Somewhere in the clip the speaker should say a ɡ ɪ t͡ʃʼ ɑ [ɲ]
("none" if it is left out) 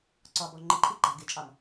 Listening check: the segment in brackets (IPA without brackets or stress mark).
m